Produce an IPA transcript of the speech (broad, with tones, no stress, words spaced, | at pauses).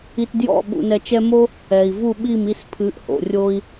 i˧tdjɔ̰˥˩ ɓṵ˧nɛ˧t͡ʃɛ˥ mo˥ | ɛ˩i̯vu˥˩ ɓi˥˩mi˥˩spʰɨ˩˥ʔho̰˩ rʲo˧i̯